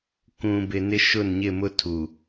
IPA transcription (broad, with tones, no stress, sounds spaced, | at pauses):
k ũ˨ b ɪ˨ n ɪ˦ ʃ ʊ˦˨ n ɲ ɪ˦˨ m ʊ˦ tʰ u˨